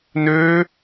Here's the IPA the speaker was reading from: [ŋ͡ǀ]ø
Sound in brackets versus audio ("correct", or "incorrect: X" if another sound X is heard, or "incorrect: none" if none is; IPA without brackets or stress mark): incorrect: n